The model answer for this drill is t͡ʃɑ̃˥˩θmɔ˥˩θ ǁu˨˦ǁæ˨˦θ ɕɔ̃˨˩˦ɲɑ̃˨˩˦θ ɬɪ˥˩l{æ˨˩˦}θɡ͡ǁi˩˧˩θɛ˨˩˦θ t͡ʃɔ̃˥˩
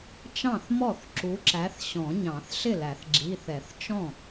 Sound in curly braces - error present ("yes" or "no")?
no